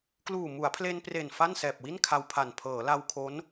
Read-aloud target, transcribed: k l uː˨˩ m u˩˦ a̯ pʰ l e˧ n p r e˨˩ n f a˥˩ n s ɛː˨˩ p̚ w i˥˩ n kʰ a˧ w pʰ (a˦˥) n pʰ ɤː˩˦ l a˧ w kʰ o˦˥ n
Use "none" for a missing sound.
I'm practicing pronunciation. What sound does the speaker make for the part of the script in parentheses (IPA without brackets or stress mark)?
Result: a˨˩